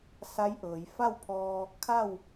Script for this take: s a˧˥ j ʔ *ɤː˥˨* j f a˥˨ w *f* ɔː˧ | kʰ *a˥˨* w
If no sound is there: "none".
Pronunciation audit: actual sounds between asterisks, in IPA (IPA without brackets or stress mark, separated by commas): ɤː˩˧, pʰ, a˥˨